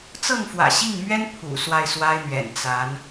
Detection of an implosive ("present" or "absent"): absent